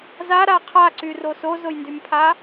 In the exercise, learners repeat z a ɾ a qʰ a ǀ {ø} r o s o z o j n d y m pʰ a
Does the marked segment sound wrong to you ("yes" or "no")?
yes